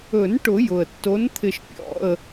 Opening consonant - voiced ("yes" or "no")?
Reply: yes